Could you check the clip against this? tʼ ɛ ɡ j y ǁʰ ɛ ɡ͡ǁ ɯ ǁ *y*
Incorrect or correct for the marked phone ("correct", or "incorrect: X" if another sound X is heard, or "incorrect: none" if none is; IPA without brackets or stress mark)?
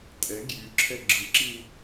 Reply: incorrect: i